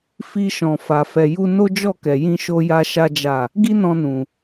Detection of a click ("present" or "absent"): absent